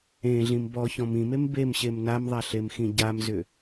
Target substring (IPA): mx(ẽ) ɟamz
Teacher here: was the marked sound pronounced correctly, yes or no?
no